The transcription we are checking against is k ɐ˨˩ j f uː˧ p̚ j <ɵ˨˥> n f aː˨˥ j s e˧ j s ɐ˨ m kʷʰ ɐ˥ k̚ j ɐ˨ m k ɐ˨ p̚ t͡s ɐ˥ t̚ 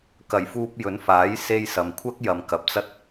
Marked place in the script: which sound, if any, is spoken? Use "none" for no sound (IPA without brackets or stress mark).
ɵ˨˥